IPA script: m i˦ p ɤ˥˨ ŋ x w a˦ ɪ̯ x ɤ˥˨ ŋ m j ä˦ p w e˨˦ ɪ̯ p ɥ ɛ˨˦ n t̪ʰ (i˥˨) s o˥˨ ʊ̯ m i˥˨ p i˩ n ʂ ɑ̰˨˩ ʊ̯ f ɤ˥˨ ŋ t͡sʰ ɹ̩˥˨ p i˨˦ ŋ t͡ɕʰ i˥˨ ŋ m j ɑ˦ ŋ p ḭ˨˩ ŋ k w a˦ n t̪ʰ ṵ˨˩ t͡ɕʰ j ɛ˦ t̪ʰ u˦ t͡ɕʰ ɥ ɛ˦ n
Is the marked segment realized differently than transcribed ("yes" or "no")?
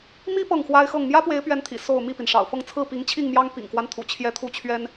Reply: yes